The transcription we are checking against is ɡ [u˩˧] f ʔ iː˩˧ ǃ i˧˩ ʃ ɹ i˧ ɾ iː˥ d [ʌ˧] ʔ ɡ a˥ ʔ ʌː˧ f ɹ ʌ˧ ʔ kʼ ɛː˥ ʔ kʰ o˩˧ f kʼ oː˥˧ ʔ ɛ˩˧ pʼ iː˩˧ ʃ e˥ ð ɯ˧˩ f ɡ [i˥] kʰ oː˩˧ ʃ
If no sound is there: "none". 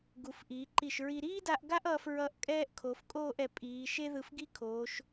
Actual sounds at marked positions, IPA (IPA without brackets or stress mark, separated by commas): u˩˧, a˧, i˥